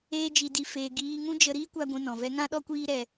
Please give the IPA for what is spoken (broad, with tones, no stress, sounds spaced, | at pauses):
eː˦ d͡ʒ i˧ d i˧ f eː˧ ɡ iː˧ ŋ ũ˦ d͡ʒ ə˧ ɾ iː˦ kʷ a˦ ɡʷ ũ˧ n ɔ̃˨ v ɛ˦ ŋ ã˦ ɗ ɔ˦ kʷ iː˦ ɾ ɛ˧